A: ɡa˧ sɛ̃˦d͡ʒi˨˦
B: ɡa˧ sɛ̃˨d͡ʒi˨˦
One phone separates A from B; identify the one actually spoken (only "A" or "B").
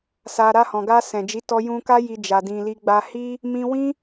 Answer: B